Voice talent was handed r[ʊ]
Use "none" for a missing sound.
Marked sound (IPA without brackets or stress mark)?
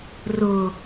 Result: ʊ